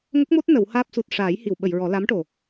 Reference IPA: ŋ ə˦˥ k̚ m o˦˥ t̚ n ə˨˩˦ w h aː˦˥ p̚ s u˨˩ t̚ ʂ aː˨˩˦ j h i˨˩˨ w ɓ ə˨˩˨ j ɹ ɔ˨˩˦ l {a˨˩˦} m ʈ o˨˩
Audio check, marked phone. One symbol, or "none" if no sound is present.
a˧˥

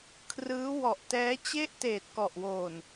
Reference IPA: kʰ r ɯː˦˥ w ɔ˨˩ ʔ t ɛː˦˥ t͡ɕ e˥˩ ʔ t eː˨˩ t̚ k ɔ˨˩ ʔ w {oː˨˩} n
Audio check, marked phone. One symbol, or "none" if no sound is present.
oː˨˩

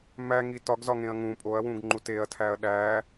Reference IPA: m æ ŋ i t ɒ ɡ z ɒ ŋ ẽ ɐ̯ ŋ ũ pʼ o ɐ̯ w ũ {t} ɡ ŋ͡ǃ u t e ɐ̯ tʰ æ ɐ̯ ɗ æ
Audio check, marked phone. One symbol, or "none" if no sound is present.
none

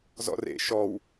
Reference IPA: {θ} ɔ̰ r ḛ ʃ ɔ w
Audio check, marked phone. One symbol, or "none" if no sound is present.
z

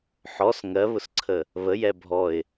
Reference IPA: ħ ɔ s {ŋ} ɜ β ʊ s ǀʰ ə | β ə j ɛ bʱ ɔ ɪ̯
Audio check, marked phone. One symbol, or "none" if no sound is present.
ŋ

